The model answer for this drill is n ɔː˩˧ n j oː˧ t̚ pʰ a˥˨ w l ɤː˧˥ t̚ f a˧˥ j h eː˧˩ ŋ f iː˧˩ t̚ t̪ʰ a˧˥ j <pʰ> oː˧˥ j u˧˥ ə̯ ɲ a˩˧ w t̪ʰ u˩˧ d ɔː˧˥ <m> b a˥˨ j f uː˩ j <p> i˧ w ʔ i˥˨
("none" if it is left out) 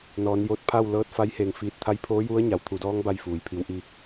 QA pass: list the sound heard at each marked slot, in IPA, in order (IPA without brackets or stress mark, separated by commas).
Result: pʰ, ŋ, pʰ